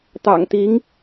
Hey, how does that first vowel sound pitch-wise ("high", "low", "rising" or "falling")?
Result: low